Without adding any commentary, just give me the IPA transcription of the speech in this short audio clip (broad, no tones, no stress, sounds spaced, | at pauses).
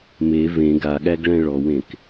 m e v ẽ ɡ a ɠ æ ɡ ɭ æ̃ ɭ ɔ w ẽ k